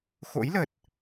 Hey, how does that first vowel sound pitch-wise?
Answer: rising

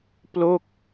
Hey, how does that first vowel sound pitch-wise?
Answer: falling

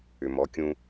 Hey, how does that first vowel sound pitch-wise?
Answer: low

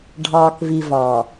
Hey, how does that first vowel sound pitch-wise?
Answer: low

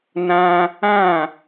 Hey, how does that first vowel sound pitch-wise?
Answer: high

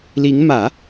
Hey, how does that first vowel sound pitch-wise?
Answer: rising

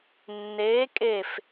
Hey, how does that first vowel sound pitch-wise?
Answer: rising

